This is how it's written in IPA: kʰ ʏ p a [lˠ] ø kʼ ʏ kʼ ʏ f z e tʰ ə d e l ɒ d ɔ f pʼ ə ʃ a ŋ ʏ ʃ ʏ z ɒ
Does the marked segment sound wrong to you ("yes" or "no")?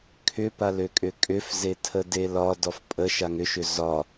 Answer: yes